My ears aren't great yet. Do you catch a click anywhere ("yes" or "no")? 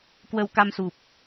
no